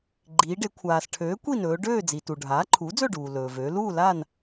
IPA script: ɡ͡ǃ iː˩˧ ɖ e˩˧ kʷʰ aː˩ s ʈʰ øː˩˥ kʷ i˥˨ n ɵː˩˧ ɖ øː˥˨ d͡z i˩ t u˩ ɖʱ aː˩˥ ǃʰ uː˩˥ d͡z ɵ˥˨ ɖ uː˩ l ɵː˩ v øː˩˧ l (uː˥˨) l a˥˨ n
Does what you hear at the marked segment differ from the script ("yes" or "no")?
no